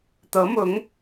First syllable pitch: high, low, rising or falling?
rising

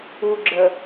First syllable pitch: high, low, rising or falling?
low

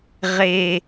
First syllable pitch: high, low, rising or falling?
low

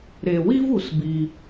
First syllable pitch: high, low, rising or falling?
low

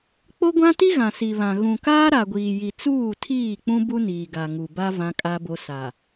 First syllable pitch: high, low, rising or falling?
high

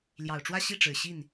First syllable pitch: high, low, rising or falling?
low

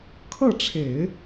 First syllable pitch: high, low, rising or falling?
falling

